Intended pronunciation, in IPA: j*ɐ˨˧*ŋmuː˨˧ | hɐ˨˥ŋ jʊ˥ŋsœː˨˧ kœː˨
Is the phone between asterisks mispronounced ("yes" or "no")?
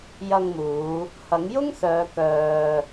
yes